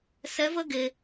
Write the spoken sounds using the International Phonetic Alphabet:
sɛ˧˥və˥ɡe˧

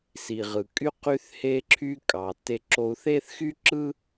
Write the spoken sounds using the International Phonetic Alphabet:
si˩ʁɯ˩kʼy˥ qy˥θhe˥ǁʰy˥ kʼɑ˩tːe˧ ǁo˧u̯θe˥θxy˥ǁɯ˥

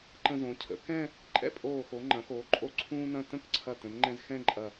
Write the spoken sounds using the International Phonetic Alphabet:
ǃə̃˧zõ˩˧ cʰə̰˩˧ kɛ̃˥˧ | ǃʼɛ̰˥pʼoː˧˩xo˩˧ ŋ͡ǃɐ̃˩˧xoː˩˧ǃʼo˧ ǀʰũː˥nɐ̃˥˧ tə̃˥˧kǀʰɐ˧˩tə̃˩˧nŋ͡ǃɛ̃˧z xɛ̃˥˧ǃʼɐ˧˩

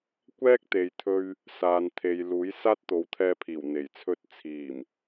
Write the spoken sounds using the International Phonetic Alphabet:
kʷɛː˥k̚ t̪e˨jt̪ʰɵ˧ɥ | saː˨˧nt̪ʰe˨˧j luː˨˥j saː˥t̚t̪o˨˥wt̪ʰɛː˧pʰiː˨˩w n̪e˨˩jt͡sʰɵ˥t̚ t͡sʰiː˨˩m

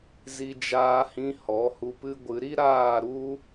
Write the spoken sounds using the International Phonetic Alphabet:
zi˧d͡ʒaː˧hĩ˧ hɔ˨˦hu˧pɨ˦ɡʷɨ˨˦ ɾi˦ɾaː˦˨ɾu˦

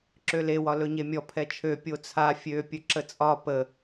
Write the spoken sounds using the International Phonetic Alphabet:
ǁøle wɒlɵɲemʲɔ pʰɛt͡ʃʰø pʲot͡sʰa fʲø pʲɵǁət͡sʼɒ pə

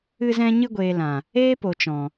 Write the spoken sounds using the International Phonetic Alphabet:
ɨ˧zɛ̃˧ ɲɨ˧ɡʷeː˨lã˨ | eː˦po˨t͡ʃɔ̃˨

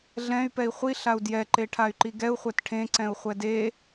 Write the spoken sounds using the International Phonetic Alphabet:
ɮɛ̃y̯pɛi̯ χʷi ɬau̯djɛǃe ʈʰay̯ǃiɡɛu̯χʷɛt ʈʰẽǀɛ̃u̯ χʷɛde

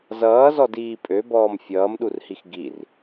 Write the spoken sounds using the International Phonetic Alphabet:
zʌːzɔdiː pʼøbɔːm fʲʌːmɗurhix ɡir

